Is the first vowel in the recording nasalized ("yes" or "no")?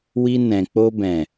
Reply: no